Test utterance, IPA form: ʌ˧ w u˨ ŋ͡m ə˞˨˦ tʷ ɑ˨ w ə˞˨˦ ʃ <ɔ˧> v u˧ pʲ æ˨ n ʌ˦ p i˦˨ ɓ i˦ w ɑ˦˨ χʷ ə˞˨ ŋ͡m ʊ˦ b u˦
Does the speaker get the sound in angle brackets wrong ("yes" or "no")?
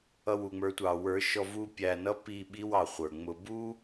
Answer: no